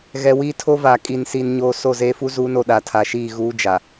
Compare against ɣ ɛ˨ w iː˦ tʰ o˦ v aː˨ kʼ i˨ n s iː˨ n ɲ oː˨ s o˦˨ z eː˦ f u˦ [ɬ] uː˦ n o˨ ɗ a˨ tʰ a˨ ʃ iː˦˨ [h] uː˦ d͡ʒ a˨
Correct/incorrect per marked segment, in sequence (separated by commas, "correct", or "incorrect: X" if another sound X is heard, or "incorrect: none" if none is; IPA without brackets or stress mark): incorrect: z, incorrect: ɣ